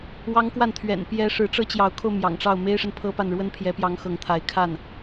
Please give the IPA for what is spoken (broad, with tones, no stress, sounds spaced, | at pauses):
w ɑ˥ ŋ k w a˥˩ n t̪ʰ ɥ ɛ̰˨˩ n p j ɛ˧˥ ʂ ɻ̩˧˥ ʈ͡ʂ ɤ˥ t͡ɕ j ɑ˧˥ ʊ̯ kʰ o˧ ʊ̯ m j ɑ̰˨˩ ŋ ʈ͡ʂ ɑ˥˩ ʊ̯ m e˥ ɪ̯ ʂ ə˨ n pʰ ɤ˥ p a˥˩ n ɻ w ə˥ n pʰ j ɛ˧˥ p j ɑ˧˥ ŋ x ɤ˧˥ ŋ t̪ʰ a˧˥ ɪ̯ kʰ a˥˩ n